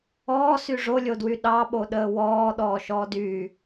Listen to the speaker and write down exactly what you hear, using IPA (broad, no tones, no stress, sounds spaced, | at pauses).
ɔː s y ʐ o lʲ o d w y ɗ ɑ ɓ o ɗ əː w ɔː ɗ ɔː ʃ ɔː d yː